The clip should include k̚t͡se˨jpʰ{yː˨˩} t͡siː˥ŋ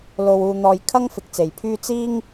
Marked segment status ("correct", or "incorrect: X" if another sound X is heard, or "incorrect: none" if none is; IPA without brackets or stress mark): incorrect: yː˥